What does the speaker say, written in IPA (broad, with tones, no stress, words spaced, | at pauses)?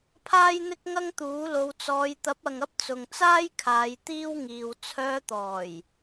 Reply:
pʰaː˥jn̪ɪ˥k̚ŋɐ˥ŋt̪uː˨˥ lo˧wt͡sɔː˧j t̪ɐ˨˥p̚ɐ˨ŋɐ˧p̚ t͡sʊ˨ŋt͡saː˥jkʰaː˨˧j t̪iː˥wŋiː˨w t͡sʰœː˧t̪ɔː˨˩j